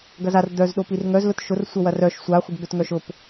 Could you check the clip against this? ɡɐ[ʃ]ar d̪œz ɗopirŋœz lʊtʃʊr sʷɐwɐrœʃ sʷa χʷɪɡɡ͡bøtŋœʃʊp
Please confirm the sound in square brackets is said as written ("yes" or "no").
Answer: no